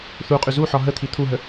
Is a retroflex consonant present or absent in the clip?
absent